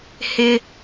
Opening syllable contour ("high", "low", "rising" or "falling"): high